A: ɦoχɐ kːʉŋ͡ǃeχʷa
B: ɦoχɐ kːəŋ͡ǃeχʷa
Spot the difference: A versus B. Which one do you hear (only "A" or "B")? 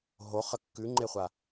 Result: A